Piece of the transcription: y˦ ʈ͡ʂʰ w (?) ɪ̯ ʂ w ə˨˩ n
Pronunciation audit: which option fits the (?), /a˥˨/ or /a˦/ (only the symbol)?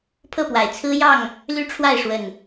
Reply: a˥˨